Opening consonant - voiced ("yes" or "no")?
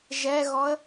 yes